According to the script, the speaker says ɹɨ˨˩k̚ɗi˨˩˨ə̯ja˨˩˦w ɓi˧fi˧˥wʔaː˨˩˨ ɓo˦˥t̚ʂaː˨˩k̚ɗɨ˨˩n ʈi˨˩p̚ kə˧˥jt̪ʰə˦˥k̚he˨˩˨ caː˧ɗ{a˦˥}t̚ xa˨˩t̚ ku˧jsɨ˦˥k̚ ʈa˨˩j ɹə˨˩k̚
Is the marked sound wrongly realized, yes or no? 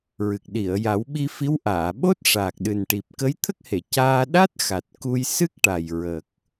no